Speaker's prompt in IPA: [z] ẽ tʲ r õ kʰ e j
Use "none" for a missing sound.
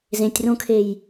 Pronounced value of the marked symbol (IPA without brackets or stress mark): z